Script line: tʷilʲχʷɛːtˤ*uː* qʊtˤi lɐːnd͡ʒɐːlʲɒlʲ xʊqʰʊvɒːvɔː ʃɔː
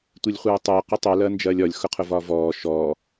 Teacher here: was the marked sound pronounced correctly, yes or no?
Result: no